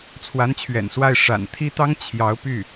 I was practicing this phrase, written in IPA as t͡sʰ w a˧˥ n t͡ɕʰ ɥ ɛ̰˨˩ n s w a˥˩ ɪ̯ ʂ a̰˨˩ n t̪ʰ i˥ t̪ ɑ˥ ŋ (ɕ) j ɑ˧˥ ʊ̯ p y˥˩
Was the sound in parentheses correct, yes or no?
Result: no